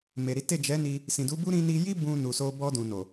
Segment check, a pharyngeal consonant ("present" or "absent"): absent